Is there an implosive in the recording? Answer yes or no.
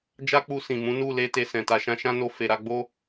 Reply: no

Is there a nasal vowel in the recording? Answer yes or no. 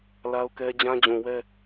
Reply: yes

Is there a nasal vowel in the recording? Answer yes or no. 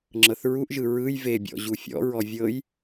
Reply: no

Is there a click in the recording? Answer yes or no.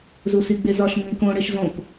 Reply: no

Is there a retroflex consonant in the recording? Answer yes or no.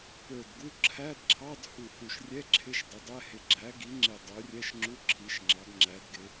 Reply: no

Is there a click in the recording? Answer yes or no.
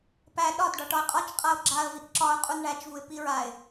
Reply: yes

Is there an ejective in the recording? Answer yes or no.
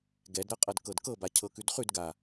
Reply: yes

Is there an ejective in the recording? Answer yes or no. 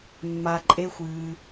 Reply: yes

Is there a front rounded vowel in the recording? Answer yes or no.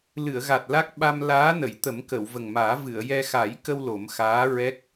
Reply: no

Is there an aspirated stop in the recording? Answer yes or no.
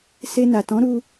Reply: no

